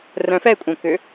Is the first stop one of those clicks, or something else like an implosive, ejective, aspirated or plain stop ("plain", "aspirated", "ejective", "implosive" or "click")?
ejective